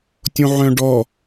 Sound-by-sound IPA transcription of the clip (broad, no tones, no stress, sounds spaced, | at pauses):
tʲ õ ʕ œ̃ ɖ ɔ